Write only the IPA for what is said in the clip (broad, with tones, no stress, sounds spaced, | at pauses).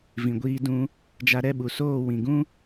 v ĩ˨ ɡʷ iː˧ d ũ˧ | d͡ʒ a˦ ɾ ɛ˦˨ ɓ u˨ s oː˦˨ w ĩ˨ ɡ ũ˦